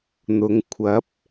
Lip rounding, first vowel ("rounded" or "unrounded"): rounded